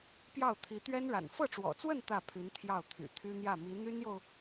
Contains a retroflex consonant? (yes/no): yes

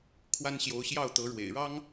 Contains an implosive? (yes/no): no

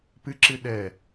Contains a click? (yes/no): yes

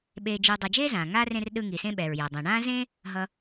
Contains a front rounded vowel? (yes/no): no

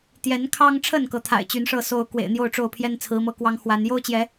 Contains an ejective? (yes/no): no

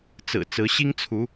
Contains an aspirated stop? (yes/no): yes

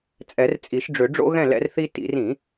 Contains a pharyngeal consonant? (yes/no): no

